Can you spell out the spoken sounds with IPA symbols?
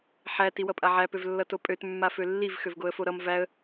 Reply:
ħæ tiwʌpʼaʕæ pøvlːʌtopʼøt mːafølːiv xøvɡoə̯foɾʌm væə̯

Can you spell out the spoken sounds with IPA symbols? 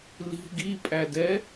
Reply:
li̤ ɡipʼædɛ

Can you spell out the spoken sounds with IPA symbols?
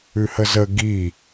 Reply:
ʉhəzə ɡi

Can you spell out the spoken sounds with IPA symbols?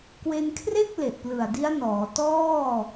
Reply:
kwe˧nkʰre˥˩k̚ le˨˩ʔplɯ˨˩a̯di˦˥a̯nɔː˩˦ tɔː˥˩

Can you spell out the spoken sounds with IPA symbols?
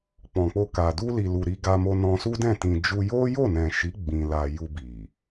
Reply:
k͡pɔ̃˨k͡po˧ka˨ du˧li˨ lu˨ɾi˧ɡa˧mo˧ nɔ̃˧su˦dɛ̃˦˨ tĩ˨d͡ʒu˧ jo˦jo˦˨nɛ̃˨ʃi˨˦ ɡ͡bĩ˧ la˧ju˧bi˨

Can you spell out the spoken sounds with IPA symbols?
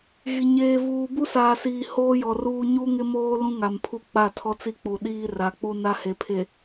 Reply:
ɣi˨ ɲeː˨vuː˨ bu˦saː˨siː˨ hoː˦jɔ˨ruː˦ ɲu˦ŋɪ˦moː˦ lũ˦ŋa˨mpʰu˦ k͡pa˦˨tʰɔ˦t͡si˦k͡pu˨ ɗiː˦ ra˨k͡pu˦ na˦he˨pʰe˨

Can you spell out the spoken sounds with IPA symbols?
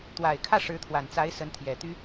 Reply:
t̪wa˨˩ɪ̯kʰä˥˩ ʂɻ̩˧˥t̪ʰwa˨˩nt͡sa˧˥ɪ̯ sə˧˥nt̪ʰjɛ˨˩t̪y˥

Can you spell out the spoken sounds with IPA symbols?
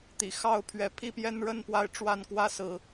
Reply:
t̪ḭ˨˩xɑ˥˨ʊ̯pʰɥɛ˨˦ pʰi˦pjɛ˦nɻə˥˨n pwa˦ɪ̯ʈ͡ʂwa˥˨nkwä˥˨sɹ̩˩

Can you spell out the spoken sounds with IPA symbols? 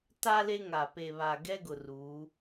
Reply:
ta˦ le˦ŋa˨ pe˨βa˨ɡɛ˦ɡʊ˨ ruː˨˦

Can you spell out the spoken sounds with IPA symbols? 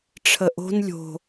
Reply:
ʈ͡ʂʰəʔo̤n lʲo̤

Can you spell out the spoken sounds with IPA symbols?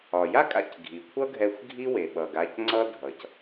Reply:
ɒ˩ja˥kʼa̰˧c ɡʱi˩kʷʰʌ˥ɡʱɛ˧xʷ ɡʱi˥we˩ ɓʌ˩ɡ a˧cŋ͡ǀʌ˥ dʱʌ˩c

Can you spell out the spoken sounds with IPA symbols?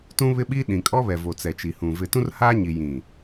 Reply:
tũ˦βɪ˦ɓiː˦ ɗĩ˨kʼɔ˦βɛ˨ vo˨t͡sɛ˨t͡ʃi˨hũ˨ vɪ˨tũ˦rhaː˦ɲi˨ jĩ˨

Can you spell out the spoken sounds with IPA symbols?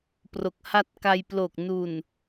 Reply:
pro˨˩k̚ ha˦˥t̚ ka˧jplo˨˩k̚ nu˨˩n

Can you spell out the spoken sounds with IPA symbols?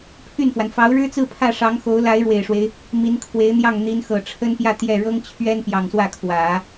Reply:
pʰy˥˩nfwa˩n fɑ˧˥ʊ̯ɻɻ̩˥t͡sɹ̩˥˧ pʰä˥˩ʂɑ˧˥ŋxo˧˥ʊ̯ la˧˥ɪ̯ɻwe˨˩ɪ̯ʂwe˦ɪ̯ | mi˧˥nkʰwe˧˥ɪ̯n̪jɑ˥˩ŋ n̪i˧˥nxɤ˨˩ʈ͡ʂʰə˥npjä˥˧ t̪jɛ˥˩ ɻɤ˥ŋt͡ɕʰɥɛ˥n pjɑ˨˩ŋswä˥˩ kʰwä˨˩˦

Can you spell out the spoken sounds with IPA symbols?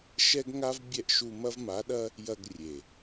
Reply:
ʃɛ˦ɡŋa˦v bʲɛ˧ʔ ʃu˧ mɐ˦vma˨˦ɗɐ˦ | jɐ˧ɡ rʲe˨

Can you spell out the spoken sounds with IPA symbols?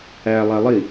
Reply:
æ lˠælˠi

